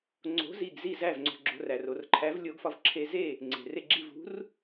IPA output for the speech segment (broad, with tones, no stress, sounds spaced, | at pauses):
ŋ͡ǀ o̤˨˥ z i˧˩ ɡ z i˥˩ z æ˥˩ v ŋ͡ǀ o̤˧˩ ɡ͡ǁ o̤˧ r æ˩ r o˩ r ǃʰ æ˨˥ v lʲ o˨˥ ɡ f ɒ˧ v ǁʰ e˧ z e˥˩ | ŋ͡ǀ e̤˩ r e˧˩ ɡ͡ǁ i˧˩ v ṳ˨˥ r